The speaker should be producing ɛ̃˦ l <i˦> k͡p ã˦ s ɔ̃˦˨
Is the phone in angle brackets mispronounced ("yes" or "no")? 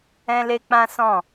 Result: yes